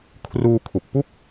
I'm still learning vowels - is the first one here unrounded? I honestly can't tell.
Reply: no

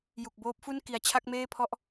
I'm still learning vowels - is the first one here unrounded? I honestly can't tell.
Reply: no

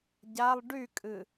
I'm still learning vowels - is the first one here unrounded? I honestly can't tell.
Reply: yes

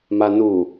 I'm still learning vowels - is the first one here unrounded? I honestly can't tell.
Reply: yes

